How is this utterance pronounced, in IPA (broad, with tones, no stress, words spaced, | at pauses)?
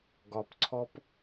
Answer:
ɡɒ˧pǀʰɔ˦p